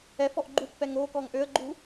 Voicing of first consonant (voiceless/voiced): voiceless